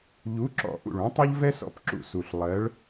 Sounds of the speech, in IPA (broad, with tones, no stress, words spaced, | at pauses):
ʎu˨˥ǁɔ̰˨˩ ʔṵ˨˩ɭũ˨˥tˤʌ˥ʎ vɛ˥sɔ̰˨˥pǁṵ˧˩˧ su˨˩ɬ lˠɜ˨˥ɭ